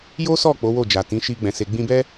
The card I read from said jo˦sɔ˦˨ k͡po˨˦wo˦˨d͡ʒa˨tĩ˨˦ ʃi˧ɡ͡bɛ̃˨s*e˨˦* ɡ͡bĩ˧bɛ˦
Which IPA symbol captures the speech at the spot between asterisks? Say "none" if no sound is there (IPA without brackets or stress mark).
e˨